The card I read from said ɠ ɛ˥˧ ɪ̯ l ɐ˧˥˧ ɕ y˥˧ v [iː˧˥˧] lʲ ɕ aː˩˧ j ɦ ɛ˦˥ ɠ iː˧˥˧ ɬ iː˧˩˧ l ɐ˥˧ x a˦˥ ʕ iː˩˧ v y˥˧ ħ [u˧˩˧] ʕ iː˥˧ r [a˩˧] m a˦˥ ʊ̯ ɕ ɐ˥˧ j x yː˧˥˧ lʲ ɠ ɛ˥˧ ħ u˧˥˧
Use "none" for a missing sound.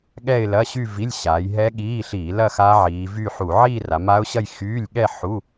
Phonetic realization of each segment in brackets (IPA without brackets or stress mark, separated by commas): i˧˥˧, u˧˩˧, a˩˧